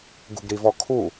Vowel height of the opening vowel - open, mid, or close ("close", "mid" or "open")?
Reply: close